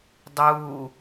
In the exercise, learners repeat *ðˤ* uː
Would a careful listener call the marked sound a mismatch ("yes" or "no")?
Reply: yes